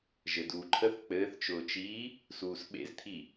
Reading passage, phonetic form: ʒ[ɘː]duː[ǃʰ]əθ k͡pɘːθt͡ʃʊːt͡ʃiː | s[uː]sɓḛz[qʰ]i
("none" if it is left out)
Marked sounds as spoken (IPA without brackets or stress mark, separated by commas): ɘ, ǃʰ, uː, t̪ʰ